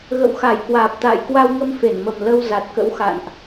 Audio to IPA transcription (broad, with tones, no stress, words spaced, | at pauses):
ɣə̰˧˨wxa˧˩jkwaː˨˩p̚t̪a̰ː˧˨j kwa˧wŋə˧m fe˧˩nmə˨˩mlə˧w za˨˩t̚kə̰˧˥wxa̰˧˨nʔ